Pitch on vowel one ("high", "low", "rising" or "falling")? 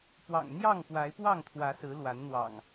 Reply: low